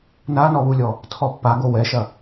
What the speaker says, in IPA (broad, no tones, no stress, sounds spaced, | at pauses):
n a n ɔ β u lʲ ɔ | tʰ ɔ pː a ɡ o w ɛ ʃ ɐ